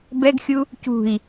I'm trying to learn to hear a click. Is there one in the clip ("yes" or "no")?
no